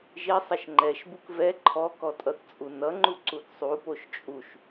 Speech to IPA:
ʒi sˤʌʃŋ͡ǃɛʃbuk vɛ ǃʰɔkɔ tʼʌθt͡sʼunʌŋ͡ǃu ǀuθsˤupoʃ t͡ʃʼuʃ

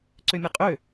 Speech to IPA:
ǀømʲaqʼø

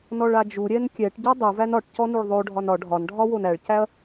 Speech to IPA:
nɔɭad͡ʒuɾʲɛn kʲɛʈɟɔ dˤuvæn ɒʈ cɔnuɭðˤoɖʱɒn ɒ ɖʱɒnɖʱɒ wonæɭcæɐ̯

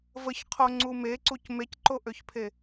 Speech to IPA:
vəçqʰoŋ͡ǀu meǀuc mecǃoʔøçpʰe

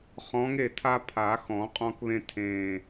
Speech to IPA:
χɔ̃˨˦ŋe˥˩tʰa˦ pʰa˨˩˦xɔ̃˨˩˦qʼɔ̃˦kβẽ˦ tʰẽ˨˩

